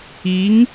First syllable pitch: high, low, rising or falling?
rising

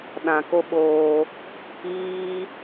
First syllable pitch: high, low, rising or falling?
low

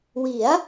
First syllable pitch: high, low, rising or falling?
rising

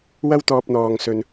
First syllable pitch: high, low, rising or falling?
high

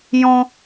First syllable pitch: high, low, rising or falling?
high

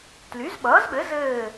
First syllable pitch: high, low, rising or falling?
rising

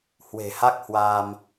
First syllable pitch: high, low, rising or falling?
low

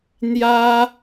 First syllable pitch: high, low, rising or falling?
high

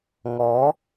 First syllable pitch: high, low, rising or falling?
rising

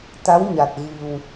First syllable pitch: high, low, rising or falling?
rising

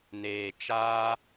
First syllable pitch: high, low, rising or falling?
low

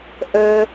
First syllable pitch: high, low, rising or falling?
high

